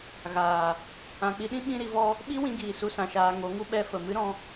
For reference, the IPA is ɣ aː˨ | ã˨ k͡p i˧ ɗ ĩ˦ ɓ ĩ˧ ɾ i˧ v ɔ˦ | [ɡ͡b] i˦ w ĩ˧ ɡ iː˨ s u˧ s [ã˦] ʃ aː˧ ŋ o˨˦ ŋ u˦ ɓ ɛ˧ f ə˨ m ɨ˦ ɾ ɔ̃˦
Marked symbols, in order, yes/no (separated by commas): no, no